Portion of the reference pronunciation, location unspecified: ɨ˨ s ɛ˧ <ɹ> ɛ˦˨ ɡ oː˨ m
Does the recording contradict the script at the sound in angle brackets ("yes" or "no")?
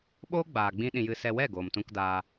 yes